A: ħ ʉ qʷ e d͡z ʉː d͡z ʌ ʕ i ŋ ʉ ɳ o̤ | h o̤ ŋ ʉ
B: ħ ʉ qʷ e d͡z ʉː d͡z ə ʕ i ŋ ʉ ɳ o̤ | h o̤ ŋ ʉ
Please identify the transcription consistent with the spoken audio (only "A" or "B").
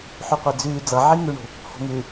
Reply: A